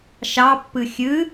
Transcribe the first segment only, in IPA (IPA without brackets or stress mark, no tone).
ʃ